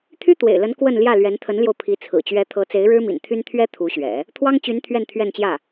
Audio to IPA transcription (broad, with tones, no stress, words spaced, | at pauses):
t̪ʰy˥t̪wḛ˨˩ɪ̯lə˧˥n kwə˥˧n ljä˥˩lɥɛ˧˥nt̪ʰə˧˥nljo˧ʊ̯ pʰi˧˥ t͡sʰɹ̩˨˩t͡ɕɥɛ˧˥t̪ʰɤ˧˥ t͡se˧˥ɪ̯ɻɻ̩˥mḭ˨˩n t̪ʰy˥n t̪ʰɥɛ˥ t̪ʰu˧˥ɕɥɛ̰˨˩˦ | t̪ʰwɑ˥ŋt͡ɕy˧˥n t̪ʰɥɛ˥˧nt̪ʰɥɛ˥˧nt͡ɕjä˥˩